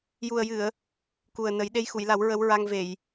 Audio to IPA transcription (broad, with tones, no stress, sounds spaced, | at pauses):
j u˨˩ ə̯ j ɨ˨˩˨ ə̯ | k u˨˩ ə̯ n ə˨˩˦ j ɗ e˧ j x u˨˩˨ j l a˨˩˦ w ɹ ə˧˥ w ɹ a˧ ŋ v e˨˩˨ j